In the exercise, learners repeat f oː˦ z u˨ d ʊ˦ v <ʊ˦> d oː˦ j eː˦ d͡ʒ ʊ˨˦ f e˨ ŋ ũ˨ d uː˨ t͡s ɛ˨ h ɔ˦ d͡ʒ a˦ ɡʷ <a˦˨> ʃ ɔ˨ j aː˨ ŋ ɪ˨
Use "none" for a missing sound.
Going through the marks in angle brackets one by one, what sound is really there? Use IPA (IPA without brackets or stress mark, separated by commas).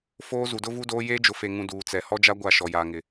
u˦, a˦˨